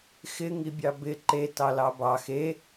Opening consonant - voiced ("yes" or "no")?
no